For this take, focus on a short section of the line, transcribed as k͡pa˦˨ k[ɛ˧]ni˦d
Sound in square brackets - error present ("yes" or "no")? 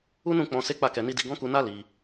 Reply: no